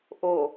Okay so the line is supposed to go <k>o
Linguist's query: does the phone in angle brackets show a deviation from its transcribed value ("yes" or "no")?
yes